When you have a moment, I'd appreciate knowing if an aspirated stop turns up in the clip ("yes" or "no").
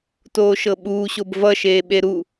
no